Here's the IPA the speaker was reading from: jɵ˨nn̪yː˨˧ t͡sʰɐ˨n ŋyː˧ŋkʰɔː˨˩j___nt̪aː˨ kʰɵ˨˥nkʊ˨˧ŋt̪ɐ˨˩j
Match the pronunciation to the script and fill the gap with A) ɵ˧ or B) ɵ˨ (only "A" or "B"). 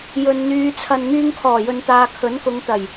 B